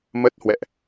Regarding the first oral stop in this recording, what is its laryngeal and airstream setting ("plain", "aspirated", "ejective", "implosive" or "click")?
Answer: plain